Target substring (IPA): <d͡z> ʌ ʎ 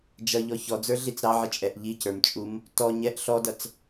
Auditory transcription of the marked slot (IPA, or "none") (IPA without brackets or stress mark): d͡ʒ